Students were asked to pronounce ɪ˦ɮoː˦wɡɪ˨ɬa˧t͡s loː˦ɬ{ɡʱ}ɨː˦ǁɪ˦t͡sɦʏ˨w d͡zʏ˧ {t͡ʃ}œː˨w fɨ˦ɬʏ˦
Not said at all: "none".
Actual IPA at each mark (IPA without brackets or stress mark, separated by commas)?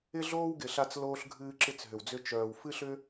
ɡʱ, t͡ʃ